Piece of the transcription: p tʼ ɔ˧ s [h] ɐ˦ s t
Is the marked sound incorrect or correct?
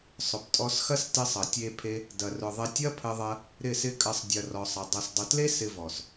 incorrect